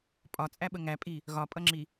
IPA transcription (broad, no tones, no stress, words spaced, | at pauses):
pʼɒt͡sʼæɓə ŋæpʼi | ɣɒpʼʌŋ͡ǁi